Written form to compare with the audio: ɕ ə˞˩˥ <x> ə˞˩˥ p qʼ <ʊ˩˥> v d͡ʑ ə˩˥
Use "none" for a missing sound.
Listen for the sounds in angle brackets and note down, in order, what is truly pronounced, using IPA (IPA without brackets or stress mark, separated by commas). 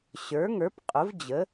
ŋ, ʊ˩˥